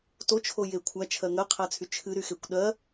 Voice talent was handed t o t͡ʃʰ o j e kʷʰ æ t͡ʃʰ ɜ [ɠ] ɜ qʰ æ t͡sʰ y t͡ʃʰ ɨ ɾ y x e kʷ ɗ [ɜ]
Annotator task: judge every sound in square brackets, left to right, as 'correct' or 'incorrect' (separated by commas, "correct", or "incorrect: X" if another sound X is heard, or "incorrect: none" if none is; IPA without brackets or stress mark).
incorrect: ŋ, correct